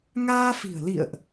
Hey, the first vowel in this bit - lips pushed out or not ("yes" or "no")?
no